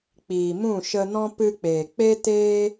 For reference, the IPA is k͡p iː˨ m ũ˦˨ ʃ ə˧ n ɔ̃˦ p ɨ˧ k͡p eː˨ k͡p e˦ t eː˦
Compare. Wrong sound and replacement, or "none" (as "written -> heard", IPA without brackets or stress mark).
none